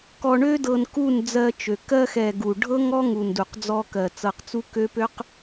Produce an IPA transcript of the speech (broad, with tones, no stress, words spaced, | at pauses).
kɔ˧ɳø˦dɤ˧n ku˦˨nd͡zɜ˧t͡ʃø˨ kɜ˧xɛ˨ ɡu˨ ɖʱɤ˦ŋɔ˦ŋu˨n du˨qd͡zɔ˧kɜ˨ t͡sɤ˧qt͡su˦kø˦ pø˦q